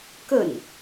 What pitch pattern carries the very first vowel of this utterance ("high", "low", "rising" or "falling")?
falling